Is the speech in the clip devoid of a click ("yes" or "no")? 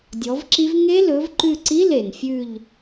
no